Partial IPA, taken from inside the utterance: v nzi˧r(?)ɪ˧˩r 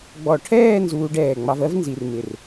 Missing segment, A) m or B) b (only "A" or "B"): A